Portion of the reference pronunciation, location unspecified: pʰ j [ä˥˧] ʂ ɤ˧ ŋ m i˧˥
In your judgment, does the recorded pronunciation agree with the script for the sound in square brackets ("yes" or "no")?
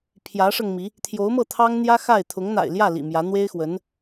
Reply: no